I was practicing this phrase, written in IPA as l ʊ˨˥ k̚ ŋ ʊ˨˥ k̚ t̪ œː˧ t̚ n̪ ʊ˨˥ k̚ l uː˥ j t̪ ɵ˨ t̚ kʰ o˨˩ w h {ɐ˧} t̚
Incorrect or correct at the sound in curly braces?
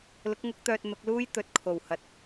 incorrect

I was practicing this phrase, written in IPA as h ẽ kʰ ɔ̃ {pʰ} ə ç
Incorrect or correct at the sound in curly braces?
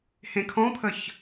correct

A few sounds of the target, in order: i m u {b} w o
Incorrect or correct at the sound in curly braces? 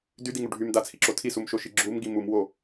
incorrect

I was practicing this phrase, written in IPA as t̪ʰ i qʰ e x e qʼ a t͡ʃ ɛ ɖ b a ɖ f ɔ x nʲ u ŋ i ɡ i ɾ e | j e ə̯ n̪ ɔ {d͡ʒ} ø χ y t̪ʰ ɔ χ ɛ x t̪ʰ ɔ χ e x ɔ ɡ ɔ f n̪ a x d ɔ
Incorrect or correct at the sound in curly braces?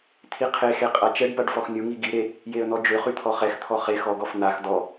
correct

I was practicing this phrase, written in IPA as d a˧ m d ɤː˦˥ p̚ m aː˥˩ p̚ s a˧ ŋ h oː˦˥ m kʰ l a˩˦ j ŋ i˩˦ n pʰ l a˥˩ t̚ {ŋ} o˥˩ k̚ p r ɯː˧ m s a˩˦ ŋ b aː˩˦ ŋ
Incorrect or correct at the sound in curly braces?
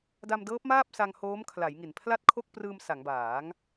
incorrect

